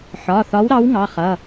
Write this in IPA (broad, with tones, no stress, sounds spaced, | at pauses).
ħ ɒ˩˧˩ θ ɒ˨˦ w ɾ ɑ˨˦ w ŋ ɑ˩˧˩ χ ʌ˩˧˩